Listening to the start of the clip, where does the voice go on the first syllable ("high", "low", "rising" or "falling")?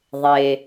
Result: low